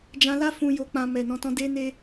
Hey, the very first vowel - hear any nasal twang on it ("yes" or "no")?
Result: yes